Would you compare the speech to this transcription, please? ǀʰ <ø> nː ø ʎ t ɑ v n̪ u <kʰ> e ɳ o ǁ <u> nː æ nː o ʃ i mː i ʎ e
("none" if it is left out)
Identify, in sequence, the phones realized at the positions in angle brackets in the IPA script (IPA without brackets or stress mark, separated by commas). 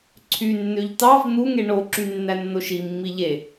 y, ŋ, y